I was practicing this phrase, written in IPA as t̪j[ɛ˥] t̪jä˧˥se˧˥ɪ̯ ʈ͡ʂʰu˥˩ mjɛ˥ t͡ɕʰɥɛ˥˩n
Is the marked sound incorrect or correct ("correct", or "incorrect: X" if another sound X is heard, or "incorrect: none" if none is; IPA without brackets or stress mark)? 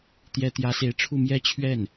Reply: incorrect: ɛ˧˥